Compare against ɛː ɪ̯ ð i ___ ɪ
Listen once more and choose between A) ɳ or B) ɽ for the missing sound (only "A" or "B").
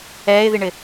A